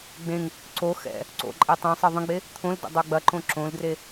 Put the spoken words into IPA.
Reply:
ɡ͡b ẽ ŋ | ǀ o x ɛ̰ | ǀ o̰ ǃʼ e tˤ ɛ̃ sˤ e ðˤ ə̃ ɡ͡b e | t̪ʰ õ l d ə̰ dˤ ə˞ ɡ͡b ɐ ǃ õ ǁ õ l d r e

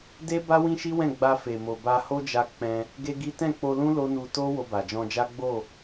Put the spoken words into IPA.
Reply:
d e˦ b a˦ w ĩ˦ ʃ i˦ w ɛ̃˦˨ ɡ͡b a˧ f e˨ m o˨ b a˧ h o˦ d͡ʒ a˧ k͡p ɛ̃˧ | ɡ e˦ ɡ i˦ t ɛ̃˦˨ k͡p o˧ l ũ˦ l o˦ n u˧ t o˦ w o˧ b a˨ d͡ʒ ɔ̃˧ d͡ʒ a˦ ɡ͡b o˦˨

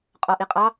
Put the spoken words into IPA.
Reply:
qʼ ɔ ʔ i qʼ ɑ

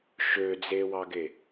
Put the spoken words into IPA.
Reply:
ʃ ø d͡z e w ɑ ɡ e

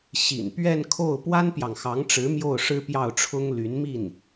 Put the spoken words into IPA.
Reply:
ɕ ḭ˨˩ n p ɥ ɛ˥˧ n kʰ o˥˩ ʊ̯ p w a˥ n p j ɑ˨ ŋ x ɑ˧˥ ŋ ʈ͡ʂ ɻ̩˧˥ m j o˥˩ ʊ̯ ʂ ɻ̩˥ p j ɑ˥˩ ʊ̯ ʈ͡ʂʰ ʊ˥ ŋ l y˧˥ n m i˥˩ n

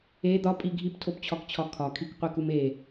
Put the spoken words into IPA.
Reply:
e d̪ ɒ pʼ i ɡʱ i p tʰ o p t͡ɕʰ ɒ k t͡ɕʰ ɒ kʰ ɒ kʰ i k qʷ i k u m e

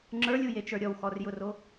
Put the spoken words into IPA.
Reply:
ŋ͡ǁ ə˞ lʲ u j e t͡ʃ ə˞ ɾʲ ɔ w x ɔ r j ʊ r o

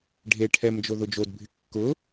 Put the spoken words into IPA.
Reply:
ɖʱ e ʈʰ ɛ m d͡ʒ o ð ʊ d͡ʒ o d bʱ ɪ kː ʊ

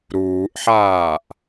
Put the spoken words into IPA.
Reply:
ɾ uː ʔ ħ aː ʔ

